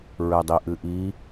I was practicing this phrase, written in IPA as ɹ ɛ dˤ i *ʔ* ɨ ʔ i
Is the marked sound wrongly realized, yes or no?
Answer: no